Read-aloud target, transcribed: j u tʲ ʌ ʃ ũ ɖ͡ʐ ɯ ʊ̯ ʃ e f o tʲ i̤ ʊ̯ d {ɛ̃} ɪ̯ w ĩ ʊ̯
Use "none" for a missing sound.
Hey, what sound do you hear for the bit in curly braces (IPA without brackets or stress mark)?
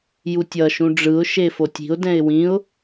ɛ̃